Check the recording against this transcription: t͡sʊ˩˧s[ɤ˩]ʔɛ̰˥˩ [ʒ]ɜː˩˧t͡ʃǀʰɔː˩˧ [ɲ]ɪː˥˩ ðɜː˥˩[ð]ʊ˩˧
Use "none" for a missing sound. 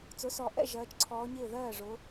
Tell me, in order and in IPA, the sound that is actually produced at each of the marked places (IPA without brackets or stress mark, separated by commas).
ɔ˩, ʒ, ɲ, ʐ